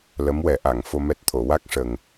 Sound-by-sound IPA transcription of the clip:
l ə˧˥ m w ɛ˨˩˦ ʔ a˨˩˨ ŋ f o˧ m ɛ˦˥ t̚ t̪ʰ o˨˩˨ w a˦˥ k̚ ʂ ə˨˩ ŋ

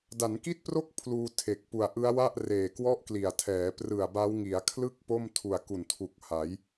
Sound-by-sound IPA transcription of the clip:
d a˩˦ n k i˥˩ t̚ p r o˥˩ k̚ pʰ l uː˧ tʰ e˨˩ k̚ p u˨˩ a̯ ʔ ɯ˦˥ a̯ w a˥˩ ʔ r eː˨˩ k w ɔ˥˩ ʔ k l i˨˩ a̯ tʰ ɛː˩˦ p r ɯ˨˩ a̯ b a˦˥ w ŋ i˩˦ a̯ kʰ l ɯ˥˩ k̚ p o˥˩ m tʰ u˨˩ a̯ k u˨˩ n tʰ u˨˩ k̚ h a˩˦ j

